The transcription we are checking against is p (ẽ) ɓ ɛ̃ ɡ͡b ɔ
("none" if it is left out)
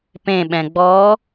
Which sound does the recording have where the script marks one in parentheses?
ẽ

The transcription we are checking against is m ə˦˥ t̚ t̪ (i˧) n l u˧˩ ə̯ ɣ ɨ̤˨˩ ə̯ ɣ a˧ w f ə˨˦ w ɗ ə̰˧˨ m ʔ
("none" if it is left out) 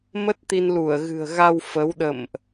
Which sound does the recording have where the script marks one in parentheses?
i˧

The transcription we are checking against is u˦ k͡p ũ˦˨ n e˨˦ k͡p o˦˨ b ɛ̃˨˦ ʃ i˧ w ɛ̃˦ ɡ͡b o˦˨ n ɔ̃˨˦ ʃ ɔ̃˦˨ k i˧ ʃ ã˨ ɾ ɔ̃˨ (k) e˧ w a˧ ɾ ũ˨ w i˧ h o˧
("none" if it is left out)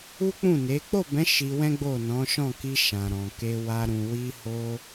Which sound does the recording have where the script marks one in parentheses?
k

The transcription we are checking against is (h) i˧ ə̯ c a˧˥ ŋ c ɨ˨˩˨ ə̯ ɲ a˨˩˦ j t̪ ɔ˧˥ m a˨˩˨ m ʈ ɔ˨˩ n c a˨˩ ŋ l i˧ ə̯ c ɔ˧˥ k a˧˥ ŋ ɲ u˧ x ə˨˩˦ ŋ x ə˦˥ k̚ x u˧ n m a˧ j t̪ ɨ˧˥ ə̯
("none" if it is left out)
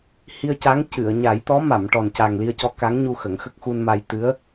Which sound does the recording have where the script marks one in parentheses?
h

